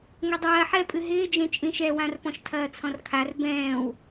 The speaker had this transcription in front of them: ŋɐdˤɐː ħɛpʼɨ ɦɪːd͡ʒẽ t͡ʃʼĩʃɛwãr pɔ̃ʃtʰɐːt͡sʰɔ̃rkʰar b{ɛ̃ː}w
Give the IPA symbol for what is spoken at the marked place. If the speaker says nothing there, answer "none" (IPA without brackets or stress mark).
ɛ̃ː